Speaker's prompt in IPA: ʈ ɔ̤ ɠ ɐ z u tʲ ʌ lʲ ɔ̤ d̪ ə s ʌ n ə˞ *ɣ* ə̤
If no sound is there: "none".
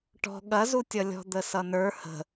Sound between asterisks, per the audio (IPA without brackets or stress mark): h